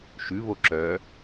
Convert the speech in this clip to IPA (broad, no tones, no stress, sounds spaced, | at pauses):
ʃ ʉ β o ǁ œ